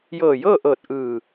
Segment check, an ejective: absent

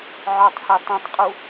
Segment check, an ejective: present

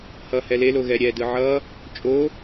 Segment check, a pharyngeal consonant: present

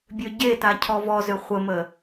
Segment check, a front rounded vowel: present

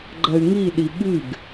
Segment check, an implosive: present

